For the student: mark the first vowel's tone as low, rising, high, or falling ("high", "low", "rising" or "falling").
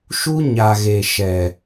high